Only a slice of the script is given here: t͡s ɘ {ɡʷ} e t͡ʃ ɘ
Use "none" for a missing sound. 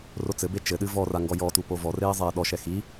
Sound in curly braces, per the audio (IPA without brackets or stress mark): b